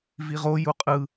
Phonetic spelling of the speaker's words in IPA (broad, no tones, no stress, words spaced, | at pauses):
viʁo juqʼɯ